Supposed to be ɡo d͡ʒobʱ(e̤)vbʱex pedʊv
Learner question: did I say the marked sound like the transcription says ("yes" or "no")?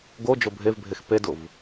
no